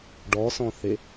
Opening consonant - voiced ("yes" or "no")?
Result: yes